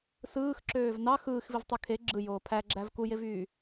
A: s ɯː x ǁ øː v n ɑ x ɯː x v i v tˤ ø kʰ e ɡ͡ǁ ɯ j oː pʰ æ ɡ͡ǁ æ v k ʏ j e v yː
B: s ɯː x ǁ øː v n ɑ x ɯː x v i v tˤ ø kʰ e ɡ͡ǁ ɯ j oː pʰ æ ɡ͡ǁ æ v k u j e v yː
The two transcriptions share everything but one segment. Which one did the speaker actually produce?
B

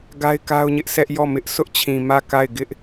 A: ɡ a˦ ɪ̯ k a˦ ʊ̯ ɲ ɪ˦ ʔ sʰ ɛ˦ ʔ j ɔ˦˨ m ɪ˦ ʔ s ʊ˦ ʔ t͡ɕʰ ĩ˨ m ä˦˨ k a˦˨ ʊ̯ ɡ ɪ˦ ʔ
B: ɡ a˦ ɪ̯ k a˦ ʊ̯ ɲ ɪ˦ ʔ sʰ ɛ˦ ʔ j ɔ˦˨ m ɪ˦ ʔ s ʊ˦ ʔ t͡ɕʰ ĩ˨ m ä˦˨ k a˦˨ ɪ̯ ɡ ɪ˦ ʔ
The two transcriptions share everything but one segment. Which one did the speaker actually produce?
B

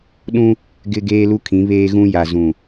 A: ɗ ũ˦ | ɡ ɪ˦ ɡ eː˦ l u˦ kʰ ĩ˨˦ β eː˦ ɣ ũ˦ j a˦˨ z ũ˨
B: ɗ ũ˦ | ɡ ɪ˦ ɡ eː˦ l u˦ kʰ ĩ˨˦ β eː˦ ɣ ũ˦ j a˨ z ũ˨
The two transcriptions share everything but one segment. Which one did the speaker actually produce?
B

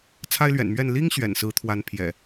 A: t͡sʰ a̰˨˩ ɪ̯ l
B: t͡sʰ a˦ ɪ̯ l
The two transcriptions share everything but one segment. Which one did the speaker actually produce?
B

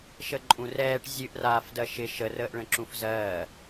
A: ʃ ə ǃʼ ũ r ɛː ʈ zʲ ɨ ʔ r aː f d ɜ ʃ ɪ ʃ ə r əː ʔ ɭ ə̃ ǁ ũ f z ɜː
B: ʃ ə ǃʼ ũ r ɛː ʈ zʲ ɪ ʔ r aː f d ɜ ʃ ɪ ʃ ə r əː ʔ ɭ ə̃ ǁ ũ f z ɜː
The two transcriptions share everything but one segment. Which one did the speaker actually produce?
A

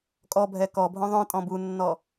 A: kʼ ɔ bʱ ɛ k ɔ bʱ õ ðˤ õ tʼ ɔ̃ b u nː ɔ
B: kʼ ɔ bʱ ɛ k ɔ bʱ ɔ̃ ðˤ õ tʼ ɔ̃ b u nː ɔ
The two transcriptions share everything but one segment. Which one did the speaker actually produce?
A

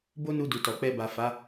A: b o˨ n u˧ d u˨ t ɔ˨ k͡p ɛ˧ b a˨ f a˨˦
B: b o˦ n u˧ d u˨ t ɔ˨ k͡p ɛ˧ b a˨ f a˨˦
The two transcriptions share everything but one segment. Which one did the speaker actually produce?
B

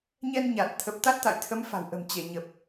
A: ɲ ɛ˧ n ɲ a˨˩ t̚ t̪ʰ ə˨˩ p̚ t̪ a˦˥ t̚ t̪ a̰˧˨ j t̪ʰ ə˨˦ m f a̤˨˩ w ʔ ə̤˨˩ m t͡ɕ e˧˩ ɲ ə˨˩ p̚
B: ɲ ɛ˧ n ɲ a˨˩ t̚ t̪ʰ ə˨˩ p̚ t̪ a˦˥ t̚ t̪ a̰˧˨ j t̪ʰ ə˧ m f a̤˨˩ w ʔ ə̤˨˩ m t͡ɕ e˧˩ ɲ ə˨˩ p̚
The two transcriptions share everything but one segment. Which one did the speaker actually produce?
A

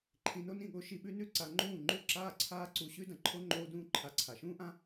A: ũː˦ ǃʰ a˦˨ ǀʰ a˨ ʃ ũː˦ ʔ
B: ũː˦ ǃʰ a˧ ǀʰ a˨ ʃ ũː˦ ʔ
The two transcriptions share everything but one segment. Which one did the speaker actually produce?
B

